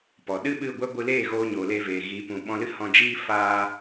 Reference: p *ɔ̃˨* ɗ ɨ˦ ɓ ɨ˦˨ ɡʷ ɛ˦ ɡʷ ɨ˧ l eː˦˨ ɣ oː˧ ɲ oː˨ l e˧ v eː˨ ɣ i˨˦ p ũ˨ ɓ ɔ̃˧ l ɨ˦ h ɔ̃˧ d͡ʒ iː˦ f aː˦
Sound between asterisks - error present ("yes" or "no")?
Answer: yes